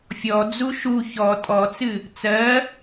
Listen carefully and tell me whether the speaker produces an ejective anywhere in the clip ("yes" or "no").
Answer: yes